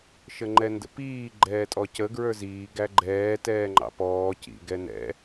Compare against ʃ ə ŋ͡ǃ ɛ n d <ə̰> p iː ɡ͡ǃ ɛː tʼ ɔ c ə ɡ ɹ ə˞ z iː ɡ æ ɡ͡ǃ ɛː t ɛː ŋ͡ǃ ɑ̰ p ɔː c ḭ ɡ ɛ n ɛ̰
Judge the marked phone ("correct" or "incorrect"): correct